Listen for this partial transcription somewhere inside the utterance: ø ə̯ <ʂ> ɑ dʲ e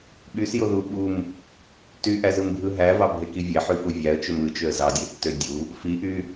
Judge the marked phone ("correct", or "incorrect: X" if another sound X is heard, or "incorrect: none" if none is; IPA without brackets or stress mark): incorrect: z